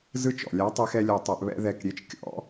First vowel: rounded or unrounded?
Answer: unrounded